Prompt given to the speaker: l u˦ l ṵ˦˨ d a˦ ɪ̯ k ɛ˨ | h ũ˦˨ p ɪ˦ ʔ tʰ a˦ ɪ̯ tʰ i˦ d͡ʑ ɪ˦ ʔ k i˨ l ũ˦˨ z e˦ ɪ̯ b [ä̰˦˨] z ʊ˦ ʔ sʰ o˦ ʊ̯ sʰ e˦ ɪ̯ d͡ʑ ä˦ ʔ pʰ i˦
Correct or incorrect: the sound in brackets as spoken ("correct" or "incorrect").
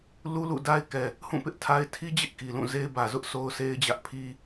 incorrect